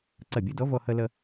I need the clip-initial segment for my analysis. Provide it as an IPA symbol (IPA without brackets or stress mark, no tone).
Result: ǀ